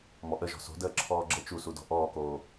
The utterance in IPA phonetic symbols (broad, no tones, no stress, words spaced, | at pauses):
mɔʔəʒɔ̤ so̤dəː ǁʰɔːɡ͡ǁə t͡ʃusudɔ̤ ʔɔːkoː